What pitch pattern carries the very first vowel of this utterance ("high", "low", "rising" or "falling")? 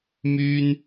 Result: high